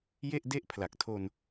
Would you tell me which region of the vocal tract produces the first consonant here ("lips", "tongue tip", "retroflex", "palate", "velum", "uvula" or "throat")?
palate